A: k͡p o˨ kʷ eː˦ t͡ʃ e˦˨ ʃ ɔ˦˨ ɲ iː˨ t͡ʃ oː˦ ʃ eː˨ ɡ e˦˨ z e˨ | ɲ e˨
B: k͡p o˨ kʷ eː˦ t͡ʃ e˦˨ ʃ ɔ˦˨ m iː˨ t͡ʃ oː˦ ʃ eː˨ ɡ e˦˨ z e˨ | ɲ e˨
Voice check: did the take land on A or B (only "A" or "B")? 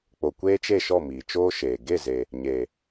B